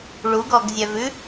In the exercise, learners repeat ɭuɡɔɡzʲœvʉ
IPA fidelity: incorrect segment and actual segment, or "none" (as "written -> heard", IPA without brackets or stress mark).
none